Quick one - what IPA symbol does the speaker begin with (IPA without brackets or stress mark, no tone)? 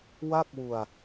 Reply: w